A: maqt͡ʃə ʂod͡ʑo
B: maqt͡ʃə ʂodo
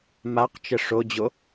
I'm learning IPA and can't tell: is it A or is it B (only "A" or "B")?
A